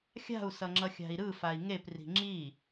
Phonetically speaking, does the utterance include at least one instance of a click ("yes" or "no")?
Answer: yes